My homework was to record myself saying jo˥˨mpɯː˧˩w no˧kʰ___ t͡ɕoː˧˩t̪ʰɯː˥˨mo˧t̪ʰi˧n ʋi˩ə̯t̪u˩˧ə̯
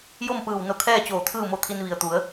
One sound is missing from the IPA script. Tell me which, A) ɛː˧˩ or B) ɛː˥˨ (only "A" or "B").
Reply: B